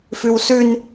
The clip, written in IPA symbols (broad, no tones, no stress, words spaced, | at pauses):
fʉwsʉn